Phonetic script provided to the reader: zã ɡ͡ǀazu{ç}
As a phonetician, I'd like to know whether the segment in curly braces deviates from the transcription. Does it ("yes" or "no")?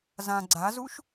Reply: yes